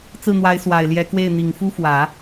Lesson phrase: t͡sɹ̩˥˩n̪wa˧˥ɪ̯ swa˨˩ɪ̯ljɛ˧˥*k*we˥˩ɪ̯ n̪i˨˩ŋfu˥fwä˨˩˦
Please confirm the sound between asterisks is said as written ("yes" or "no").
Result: yes